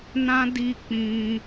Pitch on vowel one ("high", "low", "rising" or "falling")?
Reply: high